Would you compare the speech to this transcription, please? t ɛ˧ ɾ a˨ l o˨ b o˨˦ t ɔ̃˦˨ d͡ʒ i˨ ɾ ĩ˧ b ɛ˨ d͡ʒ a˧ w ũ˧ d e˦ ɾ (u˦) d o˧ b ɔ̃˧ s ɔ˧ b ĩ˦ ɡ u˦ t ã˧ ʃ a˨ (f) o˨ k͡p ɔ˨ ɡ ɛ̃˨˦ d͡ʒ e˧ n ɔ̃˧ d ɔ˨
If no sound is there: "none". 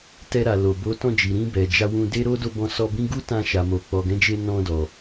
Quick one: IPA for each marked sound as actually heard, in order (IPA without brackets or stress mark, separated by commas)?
o˦, m